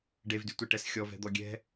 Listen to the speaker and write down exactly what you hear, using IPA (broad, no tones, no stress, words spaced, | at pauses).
ɖevdytʷɛʈɛs xʲɔvɛ̤d̪ɔ ɡʲɛ̤